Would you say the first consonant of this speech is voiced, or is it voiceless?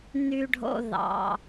voiced